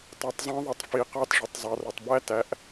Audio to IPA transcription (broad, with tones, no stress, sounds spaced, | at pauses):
tˤ æ˧ tˤ zˤ ə̃ː˦ ðˤ ʌ˧ tˤ f i˨ q ɑ˧ t ʐ ʌ˨ tˤ zˤ ɑ˨ r ʊ˨ tˤ b æ˦ t æ˨˦ ʔ